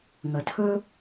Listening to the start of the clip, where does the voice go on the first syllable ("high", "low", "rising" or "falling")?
low